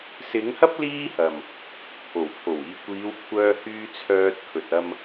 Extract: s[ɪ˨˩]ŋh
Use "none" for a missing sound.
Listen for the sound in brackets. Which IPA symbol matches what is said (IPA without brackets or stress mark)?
ɪ˨˥